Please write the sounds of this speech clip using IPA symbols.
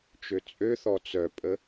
t͡ʃøt͡sʼøθɔ t͡sœpʼə

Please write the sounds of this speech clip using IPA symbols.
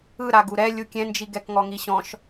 ɯɾaɡ uɾɛ lʲukʲɛ̃nd͡ʒi ɡɛkŋɔŋiɕɔ̃ʃ

